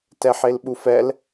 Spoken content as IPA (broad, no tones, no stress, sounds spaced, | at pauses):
t ɛ ħ e l ɓ u f ɛ l